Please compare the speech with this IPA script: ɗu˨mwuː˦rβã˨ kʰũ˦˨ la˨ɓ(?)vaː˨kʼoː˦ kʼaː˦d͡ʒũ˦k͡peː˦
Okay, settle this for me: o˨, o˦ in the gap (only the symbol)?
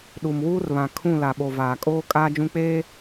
o˨